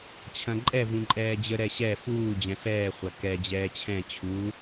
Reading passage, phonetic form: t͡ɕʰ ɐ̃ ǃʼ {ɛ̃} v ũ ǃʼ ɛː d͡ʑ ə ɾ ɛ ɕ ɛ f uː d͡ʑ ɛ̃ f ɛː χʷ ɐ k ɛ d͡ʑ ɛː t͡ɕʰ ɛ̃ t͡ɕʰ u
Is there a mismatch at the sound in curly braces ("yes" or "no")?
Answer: yes